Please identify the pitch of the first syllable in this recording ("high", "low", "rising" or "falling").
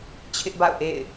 high